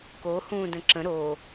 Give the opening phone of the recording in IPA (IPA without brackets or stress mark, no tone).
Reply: k